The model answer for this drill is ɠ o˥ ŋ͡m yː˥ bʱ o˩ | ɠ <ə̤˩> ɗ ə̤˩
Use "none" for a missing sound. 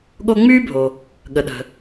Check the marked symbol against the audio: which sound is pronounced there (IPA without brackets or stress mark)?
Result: ə˩